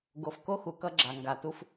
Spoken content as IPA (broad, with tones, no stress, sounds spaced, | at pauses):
ɡ o˨ f k o˦ x u˨ k ʌ˦ ɡ͡ǁ a˨ ŋ ɡ a˨ t u˦ f